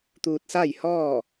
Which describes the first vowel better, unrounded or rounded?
rounded